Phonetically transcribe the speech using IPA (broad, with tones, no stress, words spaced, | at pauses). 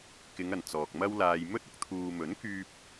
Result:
kɪ˨˧ŋɐ˨˩n t͡sɔː˨k̚mɐ˥wlaː˧j mɵ˥t̚ ʊ˧k̚t̪ʰuː˨mɵ˨˥nkyː˧p̚